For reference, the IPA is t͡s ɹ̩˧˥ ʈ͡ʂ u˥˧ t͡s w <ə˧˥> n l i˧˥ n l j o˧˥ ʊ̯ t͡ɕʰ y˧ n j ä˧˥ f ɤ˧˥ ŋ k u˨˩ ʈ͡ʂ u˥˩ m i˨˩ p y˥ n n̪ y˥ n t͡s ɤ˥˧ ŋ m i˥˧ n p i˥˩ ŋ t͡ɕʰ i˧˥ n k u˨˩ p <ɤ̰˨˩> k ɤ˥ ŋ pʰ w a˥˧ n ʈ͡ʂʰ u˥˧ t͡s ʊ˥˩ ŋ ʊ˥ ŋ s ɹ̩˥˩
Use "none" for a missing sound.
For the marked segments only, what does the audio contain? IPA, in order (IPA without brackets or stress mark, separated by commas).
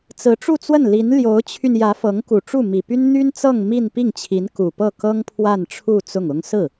ə˥˩, ɤ˥˩